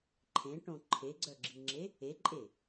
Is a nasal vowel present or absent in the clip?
present